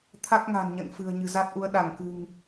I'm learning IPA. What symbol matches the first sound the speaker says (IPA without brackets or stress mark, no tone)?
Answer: t̪ʰ